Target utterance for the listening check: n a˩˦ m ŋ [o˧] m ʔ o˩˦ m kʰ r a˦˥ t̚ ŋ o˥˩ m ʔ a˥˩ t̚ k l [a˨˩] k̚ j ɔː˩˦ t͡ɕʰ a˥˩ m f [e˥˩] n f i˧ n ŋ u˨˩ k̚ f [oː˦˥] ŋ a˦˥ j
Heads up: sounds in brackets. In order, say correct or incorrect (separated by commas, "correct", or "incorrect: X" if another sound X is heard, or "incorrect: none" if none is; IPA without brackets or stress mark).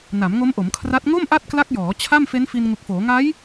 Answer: incorrect: o˦˥, incorrect: a˦˥, incorrect: e˦˥, incorrect: oː˩˦